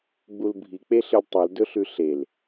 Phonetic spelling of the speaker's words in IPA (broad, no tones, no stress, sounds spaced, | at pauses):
ɡ͡b u l bʱ i k͡p e ɬ ɨ lʲ tˤ ʉ l d ɵ ɬ ʉ ɬ e l